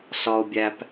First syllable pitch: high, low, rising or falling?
high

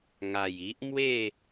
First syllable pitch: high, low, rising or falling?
low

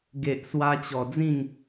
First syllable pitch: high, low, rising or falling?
low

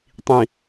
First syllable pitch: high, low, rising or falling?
low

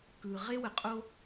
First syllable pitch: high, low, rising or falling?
low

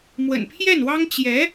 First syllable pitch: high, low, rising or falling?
low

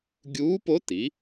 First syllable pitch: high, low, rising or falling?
rising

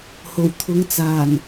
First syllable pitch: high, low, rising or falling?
low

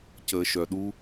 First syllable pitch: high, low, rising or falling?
high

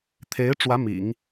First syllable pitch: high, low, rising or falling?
rising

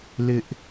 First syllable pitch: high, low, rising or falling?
high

